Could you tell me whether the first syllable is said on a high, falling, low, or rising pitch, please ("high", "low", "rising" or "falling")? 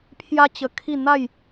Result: high